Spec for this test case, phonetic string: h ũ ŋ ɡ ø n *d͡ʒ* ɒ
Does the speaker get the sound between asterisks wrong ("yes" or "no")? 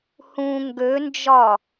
no